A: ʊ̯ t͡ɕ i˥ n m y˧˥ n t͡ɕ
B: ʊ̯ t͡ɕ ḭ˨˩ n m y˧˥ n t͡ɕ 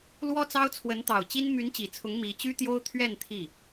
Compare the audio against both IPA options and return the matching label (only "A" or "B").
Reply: A